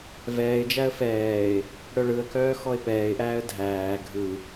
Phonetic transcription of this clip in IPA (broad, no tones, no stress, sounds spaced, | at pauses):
v ɛː ɪ̯ d͡ʒ æ ə̯ f ɛː ɪ̯ | ɽ œ ɭ ɯ ə̯ k œː x ɔ ɪ̯ p ɛː ɪ̯ ʔ æː ə̯ dʱ æː ɡʱ ɯ